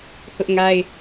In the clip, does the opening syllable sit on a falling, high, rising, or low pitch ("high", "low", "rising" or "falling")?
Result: high